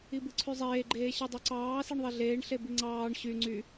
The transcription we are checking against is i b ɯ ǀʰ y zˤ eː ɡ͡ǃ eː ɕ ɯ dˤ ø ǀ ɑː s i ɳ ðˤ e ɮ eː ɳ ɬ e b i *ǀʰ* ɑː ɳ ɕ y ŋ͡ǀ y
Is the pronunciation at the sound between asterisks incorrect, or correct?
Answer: incorrect: ŋ͡ǀ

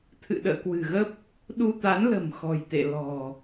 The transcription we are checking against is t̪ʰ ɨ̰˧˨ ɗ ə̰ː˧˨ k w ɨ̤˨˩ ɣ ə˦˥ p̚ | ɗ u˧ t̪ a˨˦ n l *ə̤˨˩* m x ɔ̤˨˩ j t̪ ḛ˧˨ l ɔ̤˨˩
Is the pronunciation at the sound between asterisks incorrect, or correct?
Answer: correct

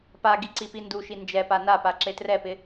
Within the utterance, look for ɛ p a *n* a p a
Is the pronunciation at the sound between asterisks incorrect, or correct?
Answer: correct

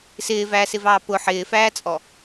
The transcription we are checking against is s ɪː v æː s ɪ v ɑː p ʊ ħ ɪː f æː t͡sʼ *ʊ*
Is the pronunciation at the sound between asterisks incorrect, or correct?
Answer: incorrect: ɔ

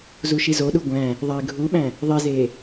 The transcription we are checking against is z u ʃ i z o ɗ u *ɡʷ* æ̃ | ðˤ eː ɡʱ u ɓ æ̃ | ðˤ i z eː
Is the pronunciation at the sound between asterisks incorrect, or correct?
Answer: correct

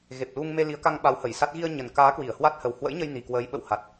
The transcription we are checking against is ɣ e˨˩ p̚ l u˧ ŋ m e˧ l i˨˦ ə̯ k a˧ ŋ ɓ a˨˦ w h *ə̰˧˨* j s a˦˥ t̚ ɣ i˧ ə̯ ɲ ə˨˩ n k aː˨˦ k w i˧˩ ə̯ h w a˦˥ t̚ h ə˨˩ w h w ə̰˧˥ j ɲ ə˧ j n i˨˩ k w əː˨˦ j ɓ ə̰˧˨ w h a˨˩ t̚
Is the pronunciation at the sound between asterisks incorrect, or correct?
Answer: incorrect: ə˧˩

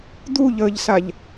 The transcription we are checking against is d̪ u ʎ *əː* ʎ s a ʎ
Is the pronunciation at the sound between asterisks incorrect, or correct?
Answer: correct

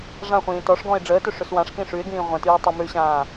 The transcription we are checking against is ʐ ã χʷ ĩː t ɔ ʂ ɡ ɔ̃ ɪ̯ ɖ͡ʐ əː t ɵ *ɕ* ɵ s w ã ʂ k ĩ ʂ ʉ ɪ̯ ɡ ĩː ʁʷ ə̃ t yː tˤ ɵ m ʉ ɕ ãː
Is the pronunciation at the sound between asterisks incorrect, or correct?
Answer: incorrect: ʂ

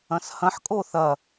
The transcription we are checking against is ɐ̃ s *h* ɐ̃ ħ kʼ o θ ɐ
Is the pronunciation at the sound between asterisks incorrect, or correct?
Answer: correct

